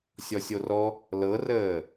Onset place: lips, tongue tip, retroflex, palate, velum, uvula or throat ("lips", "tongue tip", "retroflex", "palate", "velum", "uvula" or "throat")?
tongue tip